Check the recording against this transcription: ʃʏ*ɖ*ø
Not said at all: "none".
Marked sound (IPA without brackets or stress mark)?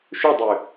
dˤ